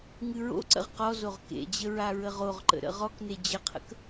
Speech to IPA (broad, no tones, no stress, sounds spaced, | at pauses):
ŋ ɨ ɹ o̰ ǀ ə̰ ʁ q ɔ z o ʁ k ḛ d͡ʑ ə ɹ a ɹ ə ʁ o ʁ ǃ ə̰ ɾ ə̰ ʁ ɔ k n e d͡ʑ ə qʰ ə̰ k